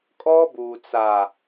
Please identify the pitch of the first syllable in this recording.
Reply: high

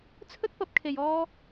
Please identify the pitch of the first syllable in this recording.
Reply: high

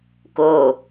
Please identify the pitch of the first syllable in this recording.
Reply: falling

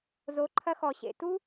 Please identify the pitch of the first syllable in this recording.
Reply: rising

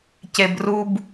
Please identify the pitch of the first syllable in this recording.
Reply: low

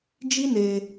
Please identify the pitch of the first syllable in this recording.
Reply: high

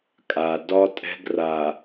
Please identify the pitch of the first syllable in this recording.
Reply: low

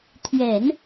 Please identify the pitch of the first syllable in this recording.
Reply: low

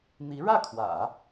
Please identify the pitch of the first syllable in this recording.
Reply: rising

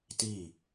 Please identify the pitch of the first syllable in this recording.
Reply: falling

